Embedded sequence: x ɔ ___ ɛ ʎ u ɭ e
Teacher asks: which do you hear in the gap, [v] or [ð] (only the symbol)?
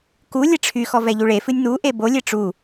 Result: v